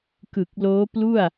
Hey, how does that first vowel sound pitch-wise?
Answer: low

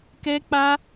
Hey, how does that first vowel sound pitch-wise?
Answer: high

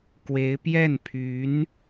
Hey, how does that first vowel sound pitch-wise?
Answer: rising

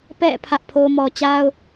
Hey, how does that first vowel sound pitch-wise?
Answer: falling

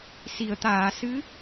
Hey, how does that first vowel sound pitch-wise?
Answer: low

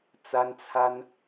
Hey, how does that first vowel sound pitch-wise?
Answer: high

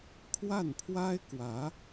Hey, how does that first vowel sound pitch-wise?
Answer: falling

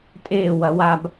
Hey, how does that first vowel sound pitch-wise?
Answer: falling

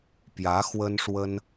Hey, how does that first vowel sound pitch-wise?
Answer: rising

